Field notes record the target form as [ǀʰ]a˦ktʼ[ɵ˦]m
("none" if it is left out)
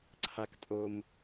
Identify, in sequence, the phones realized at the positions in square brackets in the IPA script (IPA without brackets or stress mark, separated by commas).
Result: ǀʰ, o˦